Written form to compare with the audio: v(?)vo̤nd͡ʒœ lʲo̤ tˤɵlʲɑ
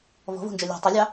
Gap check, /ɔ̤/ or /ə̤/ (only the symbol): ɔ̤